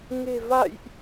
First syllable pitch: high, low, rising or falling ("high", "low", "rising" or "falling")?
low